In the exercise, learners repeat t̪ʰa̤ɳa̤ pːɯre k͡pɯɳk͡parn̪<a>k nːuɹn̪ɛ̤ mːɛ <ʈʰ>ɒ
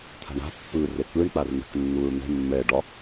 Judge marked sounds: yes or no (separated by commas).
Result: no, no